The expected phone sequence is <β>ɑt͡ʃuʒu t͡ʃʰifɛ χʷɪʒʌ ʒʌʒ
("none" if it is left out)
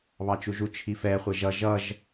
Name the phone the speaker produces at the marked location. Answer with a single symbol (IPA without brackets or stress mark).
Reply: β